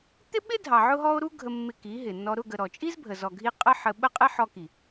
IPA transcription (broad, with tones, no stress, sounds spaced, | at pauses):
t̪ ɪ˦ ɓ ɪ˦ dʱ ɑ˨ ʕ ʊ˦ ɦ ɔ˦ o̯ ɾ u˦ ɡʱ ə˧ mː ɪ˧ k i˨˦ ɦ ɪ˨ nː ɔ˧ ɾ ʊ˦˨ ɡ ə˨ ɾ ɔ˨ t͡ʃʼ i˦ z bʱ ə˨ z ɔ˨ ɡʱ i˧ qʼ ə˦ ħ ə˧ ɓ ə˦˨ qʼ ɪ˦ ħ ɔ˧ k i˨